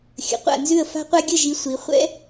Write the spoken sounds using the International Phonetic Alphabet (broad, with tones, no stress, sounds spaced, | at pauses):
xʲ ə̰˨ qʷ a̰˦˨ n z ʉ˦˨ ə̯ f a̤˦ qʷ a˦ ɡʲ ə˦˨ ʒ i˨˦ sʷ i˨˦ χʷ ɛ̰˦